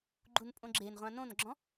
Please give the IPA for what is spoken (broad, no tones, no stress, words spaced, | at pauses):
ɡ͡ǃunpʼõɡ͡ǁen ʁʷãnõnɡ͡ǁɔ̃